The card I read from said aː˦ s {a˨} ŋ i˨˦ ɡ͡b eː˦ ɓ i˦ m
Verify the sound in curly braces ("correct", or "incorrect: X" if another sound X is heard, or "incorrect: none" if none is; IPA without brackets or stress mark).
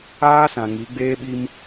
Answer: incorrect: ã˨